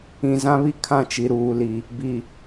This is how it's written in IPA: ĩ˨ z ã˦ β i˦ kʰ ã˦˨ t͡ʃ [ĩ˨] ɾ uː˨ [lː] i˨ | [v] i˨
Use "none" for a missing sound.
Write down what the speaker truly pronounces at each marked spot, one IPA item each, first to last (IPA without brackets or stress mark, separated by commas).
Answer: i˨, l, b